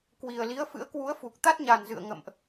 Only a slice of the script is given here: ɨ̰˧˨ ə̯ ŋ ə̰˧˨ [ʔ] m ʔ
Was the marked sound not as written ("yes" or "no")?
yes